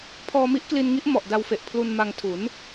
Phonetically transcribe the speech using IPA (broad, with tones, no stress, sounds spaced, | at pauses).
pʰ ɔː˧ m i˦˥ ʔ k l i˧ n ŋ i˦˥ ʔ m ɔ˨˩ ʔ d a˧ w f e˨˩ ʔ pʰ l u˧ n m a˧ ŋ tʰ u˩˦ n